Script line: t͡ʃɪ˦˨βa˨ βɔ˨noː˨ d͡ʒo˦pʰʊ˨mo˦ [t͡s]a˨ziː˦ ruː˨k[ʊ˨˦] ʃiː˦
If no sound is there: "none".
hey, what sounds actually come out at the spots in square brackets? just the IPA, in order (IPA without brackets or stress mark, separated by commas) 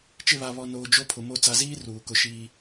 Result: t͡s, ʊ˦